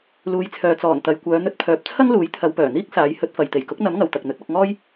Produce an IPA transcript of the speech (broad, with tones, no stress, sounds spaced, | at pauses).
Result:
l uː˨˧ j t͡sʰ œː˨ t͡s ɔː˨˩ n t̪ ɐ˨ j kʷ œː˨˧ n̪ ɵ˧ t̚ pʰ œː˨˥ p̚ t͡sʰ ɐ˥ ŋ l uː˨˥ j t̪ʰ ɐ˨˧ w p œː˨˩ n̪ iː˥ k̚ s aː˨˥ j h ɵ˨˥ t̚ f ɐ˨ j t̪ e˨˩ j k ʊ˨˥ k̚ n̪ ɐ˨˥ m ŋ ɐ˨ w t̪ ɐ˨ k̚ n̪ ɵ˨˥ t̚ ɐ˧ k̚ ŋ ɔː˥ j